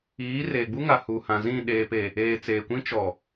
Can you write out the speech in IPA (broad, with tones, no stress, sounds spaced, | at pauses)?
iː˨˦ r e˨ ɡ͡b u˦ ŋ a˨ h u˨ h ã˨ z ĩ˦˨ ɗ eː˨ p e˨ | eː˨ t͡s eː˨ kʷ ĩ˦ t͡ʃ ɔ˨